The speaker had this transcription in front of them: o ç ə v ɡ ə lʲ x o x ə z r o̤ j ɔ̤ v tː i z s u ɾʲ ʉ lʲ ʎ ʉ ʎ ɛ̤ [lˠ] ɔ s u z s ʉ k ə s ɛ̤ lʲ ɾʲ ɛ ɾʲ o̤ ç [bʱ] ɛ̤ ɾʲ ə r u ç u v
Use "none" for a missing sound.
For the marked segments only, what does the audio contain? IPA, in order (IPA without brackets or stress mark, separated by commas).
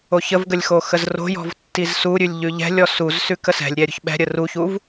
lʲ, ɓ